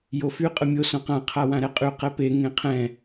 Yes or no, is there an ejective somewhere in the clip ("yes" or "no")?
yes